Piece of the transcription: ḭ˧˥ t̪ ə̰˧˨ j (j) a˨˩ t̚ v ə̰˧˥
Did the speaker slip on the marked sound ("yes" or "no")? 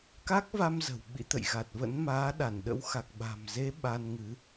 yes